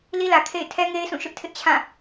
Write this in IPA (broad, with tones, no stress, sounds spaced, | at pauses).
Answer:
l i˦ l ä˨ kʰ ḛ˦˨ ɪ̯ tʰ ɛ˦ ŋ e˦ ɪ̯ s ũ˦˨ ʃ ʊ˦ ʔ tʰ ɪ˦ ʔ t͡ɕʰ ã˦˨